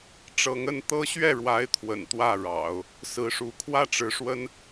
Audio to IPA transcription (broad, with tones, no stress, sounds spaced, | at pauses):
ʈ͡ʂ ɤ˧˥ ŋ ə˥˩ n t̪ ɤ˥ ɕ ɥ ɛ˥˩ ɻ w a˧˥ ɪ̯ t̪ʰ w ə̰˨˩ n t̪ w ä˥˩ ɻ ɑ̰˨˩˦ ʊ̯ | s ɹ̩˧˥ ʂ u˧˥ kʰ w ä˥˩ ʈ͡ʂ ɻ̩˧˥ ʂ w ə˥ n